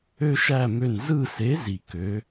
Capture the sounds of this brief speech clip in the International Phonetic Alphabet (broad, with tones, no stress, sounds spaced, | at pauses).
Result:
ø˦ ʃ æ˦˨ m ø˦˨ n z ɯ˦˨ s e˨˥ z i˨ k ø˨˥